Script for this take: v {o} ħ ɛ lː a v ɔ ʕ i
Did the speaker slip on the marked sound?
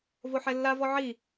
no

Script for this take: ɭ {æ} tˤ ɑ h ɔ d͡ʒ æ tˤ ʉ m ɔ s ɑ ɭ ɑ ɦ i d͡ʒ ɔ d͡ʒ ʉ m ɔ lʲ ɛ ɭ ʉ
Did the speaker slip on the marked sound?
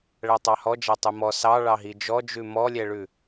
no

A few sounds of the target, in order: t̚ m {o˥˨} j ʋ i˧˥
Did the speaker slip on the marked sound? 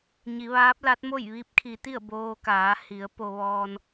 no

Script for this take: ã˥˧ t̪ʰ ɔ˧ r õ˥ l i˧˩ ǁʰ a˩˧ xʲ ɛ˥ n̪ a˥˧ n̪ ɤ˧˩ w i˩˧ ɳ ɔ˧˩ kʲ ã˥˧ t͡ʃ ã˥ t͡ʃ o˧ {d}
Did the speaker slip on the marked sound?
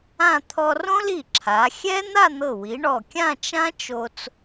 yes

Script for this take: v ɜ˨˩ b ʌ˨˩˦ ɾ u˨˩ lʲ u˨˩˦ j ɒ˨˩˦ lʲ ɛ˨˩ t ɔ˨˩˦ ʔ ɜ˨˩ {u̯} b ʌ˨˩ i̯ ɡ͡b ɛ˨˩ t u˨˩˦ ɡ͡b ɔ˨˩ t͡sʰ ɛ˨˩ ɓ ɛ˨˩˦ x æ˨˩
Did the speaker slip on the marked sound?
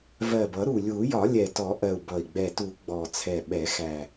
no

